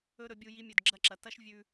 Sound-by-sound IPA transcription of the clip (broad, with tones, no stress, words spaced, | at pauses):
ɵ˦ɾɵ˨˦bʲu˧ ji˧mʲɵ˨d ɡ͡ǁɐ˦ǁɐ˨ tɐ˦ʃ vʲʉ˧